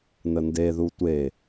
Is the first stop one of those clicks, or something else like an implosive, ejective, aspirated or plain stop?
plain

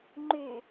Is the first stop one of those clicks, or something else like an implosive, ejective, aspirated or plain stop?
click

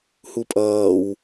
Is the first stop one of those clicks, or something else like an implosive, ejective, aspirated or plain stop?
ejective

